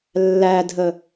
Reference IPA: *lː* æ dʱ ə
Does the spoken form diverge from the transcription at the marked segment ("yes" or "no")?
no